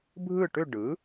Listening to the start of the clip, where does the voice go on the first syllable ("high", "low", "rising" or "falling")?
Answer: falling